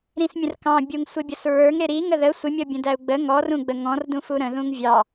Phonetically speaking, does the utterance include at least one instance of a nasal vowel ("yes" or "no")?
yes